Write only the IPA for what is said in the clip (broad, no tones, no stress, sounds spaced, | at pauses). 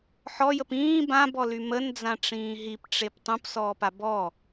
ħ ɔ j ə p ĩː b ã b ɔ l y m ə n d͡z ã ʈ͡ʂ ĩː ɦ i p ʈ͡ʂ e p tˤ ũ p s ɔː p a b ɔ